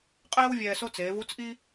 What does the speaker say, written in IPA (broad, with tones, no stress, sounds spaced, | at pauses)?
qʼ ɛː˥ w vʲ ɛː˧ s o˥ t͡s eː˩˧ v u˧˥ t͡s ʔ i˥